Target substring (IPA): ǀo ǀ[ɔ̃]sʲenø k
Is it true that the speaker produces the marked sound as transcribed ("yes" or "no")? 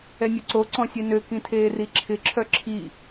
yes